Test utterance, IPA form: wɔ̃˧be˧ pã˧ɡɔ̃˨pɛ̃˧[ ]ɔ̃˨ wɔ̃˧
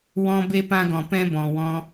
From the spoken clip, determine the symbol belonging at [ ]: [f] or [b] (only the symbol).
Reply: b